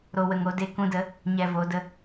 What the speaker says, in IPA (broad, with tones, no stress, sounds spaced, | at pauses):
ɾ o˨ w ə˨ ŋ o˧ d e˧ k ũ˧ d ə˨˦ | ɲ ɛ˨ v o˨˦ d ə˧